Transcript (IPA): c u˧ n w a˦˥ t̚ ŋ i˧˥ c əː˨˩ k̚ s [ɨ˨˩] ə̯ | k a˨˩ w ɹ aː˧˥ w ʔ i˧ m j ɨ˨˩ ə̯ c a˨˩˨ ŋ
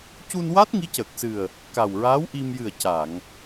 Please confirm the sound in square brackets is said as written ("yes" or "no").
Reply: yes